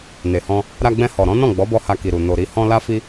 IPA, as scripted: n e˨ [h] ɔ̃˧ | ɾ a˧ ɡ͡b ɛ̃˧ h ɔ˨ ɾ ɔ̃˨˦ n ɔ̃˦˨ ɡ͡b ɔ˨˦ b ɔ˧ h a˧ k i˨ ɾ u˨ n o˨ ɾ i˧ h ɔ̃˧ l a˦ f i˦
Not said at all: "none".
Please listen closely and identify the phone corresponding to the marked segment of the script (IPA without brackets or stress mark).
h